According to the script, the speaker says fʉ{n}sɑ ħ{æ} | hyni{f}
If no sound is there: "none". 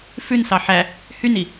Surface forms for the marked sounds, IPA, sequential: n, æ, none

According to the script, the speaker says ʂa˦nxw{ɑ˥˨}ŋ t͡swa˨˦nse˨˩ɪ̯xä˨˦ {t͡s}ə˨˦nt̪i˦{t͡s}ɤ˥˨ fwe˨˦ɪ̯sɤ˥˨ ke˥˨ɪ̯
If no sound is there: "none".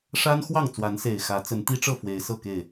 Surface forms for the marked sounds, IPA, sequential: ɑ˥˨, t͡s, ʈ͡ʂ

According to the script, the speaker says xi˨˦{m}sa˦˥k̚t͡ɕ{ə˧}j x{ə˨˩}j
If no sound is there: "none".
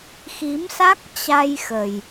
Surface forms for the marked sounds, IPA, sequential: m, a˧, ə˨˩

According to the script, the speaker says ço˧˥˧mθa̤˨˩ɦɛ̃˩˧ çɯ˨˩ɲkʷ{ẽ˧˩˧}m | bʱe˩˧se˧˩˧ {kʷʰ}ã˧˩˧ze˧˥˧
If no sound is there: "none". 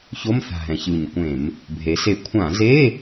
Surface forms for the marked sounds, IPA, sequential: ẽ˧˩˧, kʷʰ

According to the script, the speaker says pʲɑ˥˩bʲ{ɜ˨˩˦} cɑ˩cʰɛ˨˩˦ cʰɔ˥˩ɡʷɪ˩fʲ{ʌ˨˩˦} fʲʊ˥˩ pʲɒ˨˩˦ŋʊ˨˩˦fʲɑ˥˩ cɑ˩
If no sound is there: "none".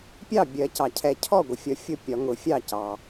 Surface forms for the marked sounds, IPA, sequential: ɜ˨˩˦, ʌ˨˩˦

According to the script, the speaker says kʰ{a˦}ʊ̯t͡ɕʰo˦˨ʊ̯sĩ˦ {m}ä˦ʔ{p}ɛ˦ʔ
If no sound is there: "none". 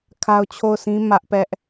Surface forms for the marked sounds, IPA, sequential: a˦, m, p

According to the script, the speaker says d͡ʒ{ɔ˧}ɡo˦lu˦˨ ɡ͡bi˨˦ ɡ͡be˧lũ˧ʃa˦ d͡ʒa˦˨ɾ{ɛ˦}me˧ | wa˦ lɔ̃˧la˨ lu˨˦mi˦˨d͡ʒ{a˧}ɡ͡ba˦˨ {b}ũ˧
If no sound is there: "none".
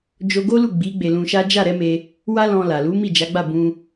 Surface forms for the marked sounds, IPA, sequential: o˧, ɛ˨˦, a˨˦, b

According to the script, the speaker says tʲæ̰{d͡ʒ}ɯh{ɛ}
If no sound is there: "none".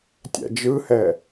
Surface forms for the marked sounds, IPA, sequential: d͡ʒ, ɛ

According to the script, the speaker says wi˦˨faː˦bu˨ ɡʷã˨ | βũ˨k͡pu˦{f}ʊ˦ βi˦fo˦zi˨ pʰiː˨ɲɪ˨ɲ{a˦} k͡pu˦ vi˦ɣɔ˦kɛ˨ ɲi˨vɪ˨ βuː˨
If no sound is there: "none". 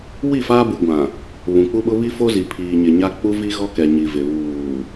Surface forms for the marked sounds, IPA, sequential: ɓ, a˦

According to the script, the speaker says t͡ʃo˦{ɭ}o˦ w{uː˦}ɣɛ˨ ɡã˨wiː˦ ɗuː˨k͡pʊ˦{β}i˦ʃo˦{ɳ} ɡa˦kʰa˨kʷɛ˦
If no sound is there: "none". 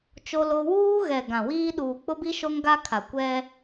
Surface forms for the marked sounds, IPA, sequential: l, uː˦, b, ŋ

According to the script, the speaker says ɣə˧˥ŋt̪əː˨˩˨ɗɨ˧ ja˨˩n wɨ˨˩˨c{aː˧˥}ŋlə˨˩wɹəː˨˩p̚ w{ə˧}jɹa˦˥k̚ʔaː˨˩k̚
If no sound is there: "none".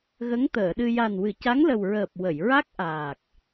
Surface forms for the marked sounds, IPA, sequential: a˧˥, ə˨˩˨

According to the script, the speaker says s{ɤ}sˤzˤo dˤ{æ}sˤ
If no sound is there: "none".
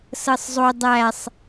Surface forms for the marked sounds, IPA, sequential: ɤ, æ

